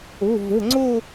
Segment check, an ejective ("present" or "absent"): absent